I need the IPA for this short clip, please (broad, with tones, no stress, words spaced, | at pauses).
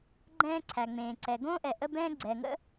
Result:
ɡ͡ǃɛ̃ː˥ǀʰæ˩ŋ͡mẽː˩ ǀɛ˩ ɡõː˥ʔɛ˩ ʔə˥ bɛ̃ː˥ ɡ͡ǀɛː˩ŋə̰˥